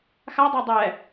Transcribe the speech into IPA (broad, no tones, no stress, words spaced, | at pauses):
xadˤo dˤɛ